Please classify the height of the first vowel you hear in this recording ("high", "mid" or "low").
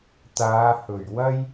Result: low